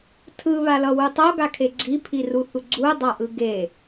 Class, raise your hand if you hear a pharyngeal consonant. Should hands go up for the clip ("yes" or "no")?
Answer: no